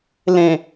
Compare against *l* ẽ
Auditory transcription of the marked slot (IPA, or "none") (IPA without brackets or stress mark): l